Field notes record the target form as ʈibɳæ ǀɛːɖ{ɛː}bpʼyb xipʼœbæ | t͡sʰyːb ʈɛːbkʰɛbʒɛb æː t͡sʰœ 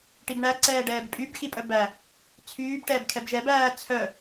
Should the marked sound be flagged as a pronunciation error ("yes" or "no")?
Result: no